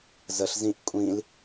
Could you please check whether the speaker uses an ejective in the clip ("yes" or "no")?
yes